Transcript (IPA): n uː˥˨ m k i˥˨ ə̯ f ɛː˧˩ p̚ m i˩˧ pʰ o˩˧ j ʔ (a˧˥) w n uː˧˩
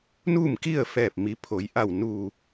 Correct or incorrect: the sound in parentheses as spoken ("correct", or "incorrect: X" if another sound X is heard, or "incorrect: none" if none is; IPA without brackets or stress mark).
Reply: incorrect: a˧˩